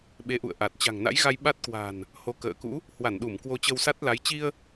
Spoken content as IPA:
ɓe˨˦ʔṵ˧˨ə̯ ʔa˨˩t̚t͡ɕa̤˨˩ŋna̰˧˥jɣa˧j ɓa˦˥t̚kwa̤˨˩n | ho˨˦kə̰ː˧˨kṵ˧˥ | hwa˧˩nɗu˧˩m kwo˧t͡ɕə˧wsa˦˥t̚la˨˦j t͡ɕi˧ə̯

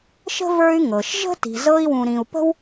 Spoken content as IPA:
ʃə̤˥və˞˦y̯ ŋɤ˩ʃʒə̤˥ ti̤˨zɤ˦i̯ wũ˨ɾĩ˨u̯pə̤˥w

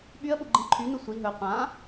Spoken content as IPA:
ɓyə̯ɓu ɡ͡ǃĩǃʰynu sʷi ɦɵ qʷã

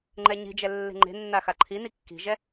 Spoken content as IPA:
ŋ͡ǃɛɲi̤d͡ʒɛ lːe̤ŋ͡ǃe̤nːa xaǃʰini kːi̤ʒɛ

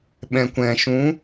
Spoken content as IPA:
ɓɛ̃˨kʷɛ̃˨ ʃũ˨˦

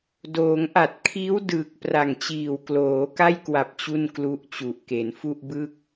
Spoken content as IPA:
doː˩˦ŋʔa˨˩t̚kʰiː˦˥w dɯː˨˩k̚ pra˨˩ŋt͡ɕiː˨˩w kloː˩˦ka˥˩jkwa˨˩p̚ t͡ɕu˥˩nklu˦˥ʔt͡ɕu˨˩ʔke˩˦n fu˥˩ʔbɯ˥˩k̚

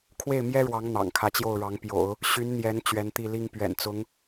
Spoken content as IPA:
kʰwe˥˩ɪ̯mjɛ˥ɻwɑ˧˥ŋ n̪ɑ̰˨˩ŋkʰä˧˥t͡ɕjo˥˩ʊ̯ɻɑ˧˥ŋ pjo̰˨˩˦ʊ̯ | ɕy˧˥n n̪jɛ˧˥n t͡ɕɥɛ˧˥nt̪i˥˩li˥ŋ pɥɛ̰˨˩nt͡sʊ˧˥ŋ

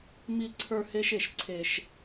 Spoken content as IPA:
mi˦ǀʰə˞˦he˦ʃe˨ʃ ǀʰe˦ʃ

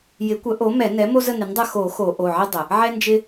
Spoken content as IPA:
jɪ˩˥kʷə˩˥ʔo˩˥ mɛ˨˩˦nɛ˩˥ mo˦zə˦˨nɪ˩˥ndˤə˦˨ xo˨˩˦ xo˨˩˦ʔo˩˧˩ʕɪ˦ dˤə˩ | ʕɛ˦nd͡ʒɪ˦

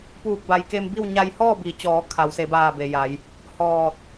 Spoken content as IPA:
puː˧˩k̚ba˩jke˧mbi˥˨w ɲa˧jhɔː˥˨bi˩˧t͡ɕɔː˩˧ kʰa˩˧wse˩˧baː˧˩ be˩ja˩˧j | hɔː˧˩t̚

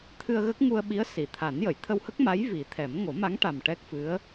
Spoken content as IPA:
t̪ʰɨ˧ə̯ɣə˦˥k̚ŋu˧ə̯ɓi˧˥ə̯ si˨˩˨ t̪ʰa˨˩˦njə˨˩˨j t̪ʰə˧whə˦˥k̚ma˧˥j vi˨˩˦t̪ʰɛ˨˩˦m ŋo˨˩˦ma˧˥ŋ ʈa˨˩m ʈɛ˦˥k̚fɨ˧˥ə̯

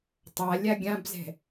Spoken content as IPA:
tˤalʲa ɡʲãbzɛ̤

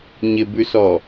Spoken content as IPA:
ɲɪbʉsɔ

